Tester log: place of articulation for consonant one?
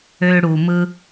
retroflex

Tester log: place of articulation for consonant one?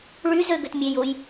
retroflex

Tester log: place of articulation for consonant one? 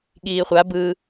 velar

